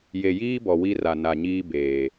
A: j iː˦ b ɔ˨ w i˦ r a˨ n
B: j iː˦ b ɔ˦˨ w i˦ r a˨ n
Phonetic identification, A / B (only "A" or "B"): A